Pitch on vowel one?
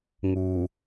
low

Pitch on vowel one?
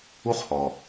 high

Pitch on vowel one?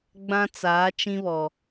high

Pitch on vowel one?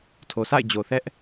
low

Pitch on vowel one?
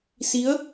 rising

